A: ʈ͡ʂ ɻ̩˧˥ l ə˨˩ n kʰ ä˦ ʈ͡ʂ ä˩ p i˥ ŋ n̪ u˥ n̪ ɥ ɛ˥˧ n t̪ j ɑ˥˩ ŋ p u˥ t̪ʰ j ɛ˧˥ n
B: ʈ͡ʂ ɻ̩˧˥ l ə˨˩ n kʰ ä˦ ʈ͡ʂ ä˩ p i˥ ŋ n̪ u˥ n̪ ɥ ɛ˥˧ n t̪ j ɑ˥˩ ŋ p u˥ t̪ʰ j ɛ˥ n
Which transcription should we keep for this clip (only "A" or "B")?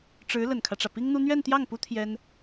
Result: B